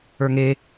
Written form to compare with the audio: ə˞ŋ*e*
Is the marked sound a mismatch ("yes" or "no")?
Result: no